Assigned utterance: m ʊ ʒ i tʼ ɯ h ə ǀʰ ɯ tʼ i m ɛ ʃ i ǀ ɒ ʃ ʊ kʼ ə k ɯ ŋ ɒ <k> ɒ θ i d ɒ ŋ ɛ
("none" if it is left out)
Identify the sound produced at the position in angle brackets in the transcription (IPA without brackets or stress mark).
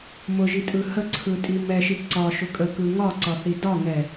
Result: ǀ